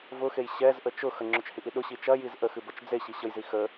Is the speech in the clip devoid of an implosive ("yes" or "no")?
no